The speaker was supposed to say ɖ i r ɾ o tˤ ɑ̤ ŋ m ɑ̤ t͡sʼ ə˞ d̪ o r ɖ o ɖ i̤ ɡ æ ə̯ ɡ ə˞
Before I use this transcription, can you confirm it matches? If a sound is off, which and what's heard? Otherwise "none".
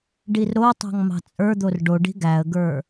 none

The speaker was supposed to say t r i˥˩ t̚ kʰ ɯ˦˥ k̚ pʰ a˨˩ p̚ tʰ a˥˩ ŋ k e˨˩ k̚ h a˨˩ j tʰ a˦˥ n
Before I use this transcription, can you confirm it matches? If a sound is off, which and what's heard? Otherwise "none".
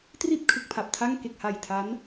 none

